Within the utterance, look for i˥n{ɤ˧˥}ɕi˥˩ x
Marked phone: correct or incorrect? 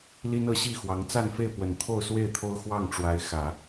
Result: correct